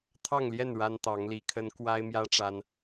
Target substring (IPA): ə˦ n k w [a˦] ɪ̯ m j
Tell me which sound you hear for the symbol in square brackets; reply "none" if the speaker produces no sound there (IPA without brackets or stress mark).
a˦